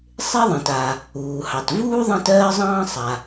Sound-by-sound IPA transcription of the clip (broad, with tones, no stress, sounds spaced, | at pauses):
sˤ e˥ ðˤ ĩ˩ t a˩ | uː˩ h ɑ˩ t v uː˥ ðˤ ɑ̃˥ t ɜː˥ zˤ ɑ̃ː˥ sˤ a˩